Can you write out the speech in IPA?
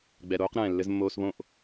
ɡ͡b ɛ˨ ɾ oː˧ q ɾ ɛ̃ː˨ lː ɘ˧ z mː oː˧ s β õ˦˨ ʔ

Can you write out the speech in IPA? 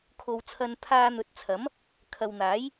kʰ o˨ w t͡sʰ ɐ˧ n t̪ʰ aː˧ n̪ ɵ˨˥ t̚ t͡sʰ ɐ˨˥ m | kʰ ɐ˨ w n̪ aː˨˥ j

